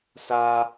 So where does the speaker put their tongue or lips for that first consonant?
tongue tip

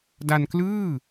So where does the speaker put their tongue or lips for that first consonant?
tongue tip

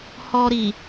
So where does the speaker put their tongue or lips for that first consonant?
throat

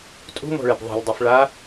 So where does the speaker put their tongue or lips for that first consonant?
tongue tip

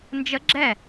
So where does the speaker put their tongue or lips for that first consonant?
tongue tip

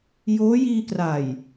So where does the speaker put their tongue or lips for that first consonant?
palate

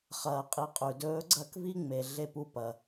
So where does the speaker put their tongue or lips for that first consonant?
uvula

